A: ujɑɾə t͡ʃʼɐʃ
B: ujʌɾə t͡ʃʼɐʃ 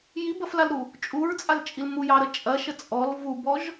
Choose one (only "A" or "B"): A